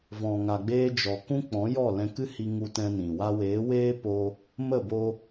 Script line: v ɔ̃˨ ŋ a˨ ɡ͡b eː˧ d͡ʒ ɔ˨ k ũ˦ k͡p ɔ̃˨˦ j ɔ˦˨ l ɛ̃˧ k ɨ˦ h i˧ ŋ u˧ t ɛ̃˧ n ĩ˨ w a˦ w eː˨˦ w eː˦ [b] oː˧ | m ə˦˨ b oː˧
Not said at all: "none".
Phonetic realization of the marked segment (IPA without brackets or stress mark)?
p